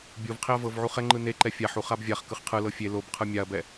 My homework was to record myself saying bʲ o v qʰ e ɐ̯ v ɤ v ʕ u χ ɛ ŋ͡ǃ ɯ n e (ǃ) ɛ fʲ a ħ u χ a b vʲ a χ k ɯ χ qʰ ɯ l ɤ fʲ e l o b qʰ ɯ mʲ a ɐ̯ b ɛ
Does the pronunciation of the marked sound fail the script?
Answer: no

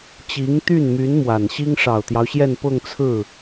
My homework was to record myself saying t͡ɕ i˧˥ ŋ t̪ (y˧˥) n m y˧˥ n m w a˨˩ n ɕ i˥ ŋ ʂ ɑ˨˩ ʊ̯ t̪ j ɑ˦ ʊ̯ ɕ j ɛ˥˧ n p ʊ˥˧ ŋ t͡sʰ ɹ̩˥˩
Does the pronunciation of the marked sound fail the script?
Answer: yes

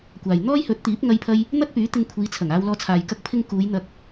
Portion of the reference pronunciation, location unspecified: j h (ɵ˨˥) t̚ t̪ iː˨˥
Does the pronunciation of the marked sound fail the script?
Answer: no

